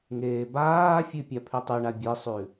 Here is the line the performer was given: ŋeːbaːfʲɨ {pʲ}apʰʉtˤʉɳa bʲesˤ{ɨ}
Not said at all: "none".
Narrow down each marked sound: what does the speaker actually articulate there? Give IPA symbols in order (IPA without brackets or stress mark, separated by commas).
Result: pʲ, ʉ